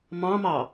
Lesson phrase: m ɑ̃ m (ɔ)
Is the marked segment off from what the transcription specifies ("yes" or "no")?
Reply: yes